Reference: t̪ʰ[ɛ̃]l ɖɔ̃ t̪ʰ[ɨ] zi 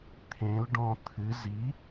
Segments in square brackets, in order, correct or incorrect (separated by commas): incorrect, correct